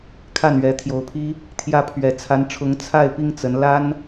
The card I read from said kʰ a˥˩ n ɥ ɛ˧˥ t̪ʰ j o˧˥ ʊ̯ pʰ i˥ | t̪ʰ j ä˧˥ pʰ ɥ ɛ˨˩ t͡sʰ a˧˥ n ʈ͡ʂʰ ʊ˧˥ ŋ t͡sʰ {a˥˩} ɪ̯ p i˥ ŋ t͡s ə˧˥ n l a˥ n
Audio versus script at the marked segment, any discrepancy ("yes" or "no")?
no